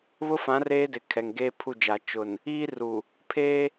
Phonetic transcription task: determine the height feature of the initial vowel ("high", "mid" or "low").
high